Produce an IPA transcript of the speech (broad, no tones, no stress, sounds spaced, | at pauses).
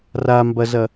r a m b ɐ z ɐ